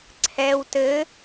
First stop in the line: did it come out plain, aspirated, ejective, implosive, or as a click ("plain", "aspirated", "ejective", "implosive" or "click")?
click